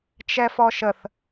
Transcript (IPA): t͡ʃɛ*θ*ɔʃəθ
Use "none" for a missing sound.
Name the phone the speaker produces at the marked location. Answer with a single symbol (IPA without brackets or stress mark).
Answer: f